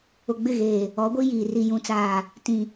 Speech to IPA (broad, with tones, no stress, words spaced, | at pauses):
ʊ˨ɡ͡bɪ˦˨ɣeː˨ | ɔ˨˦ɡʷi˦jiː˨ ri˨jũ˨t͡saː˨ | tĩ˨